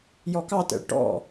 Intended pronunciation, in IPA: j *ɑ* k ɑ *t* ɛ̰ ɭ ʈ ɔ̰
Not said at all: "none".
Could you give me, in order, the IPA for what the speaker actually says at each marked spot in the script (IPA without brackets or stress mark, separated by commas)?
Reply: ɔ, t